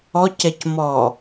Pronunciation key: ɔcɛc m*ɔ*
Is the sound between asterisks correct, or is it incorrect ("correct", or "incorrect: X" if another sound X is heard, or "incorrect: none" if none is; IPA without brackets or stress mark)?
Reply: correct